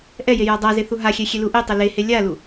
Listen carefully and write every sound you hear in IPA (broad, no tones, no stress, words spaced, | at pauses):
ʔɛje jadˤaze θuɦaxʲɛ xʲeluʔetˤɛ lehe lʲalu